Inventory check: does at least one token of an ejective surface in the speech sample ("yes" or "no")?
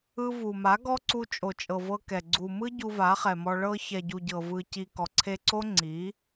yes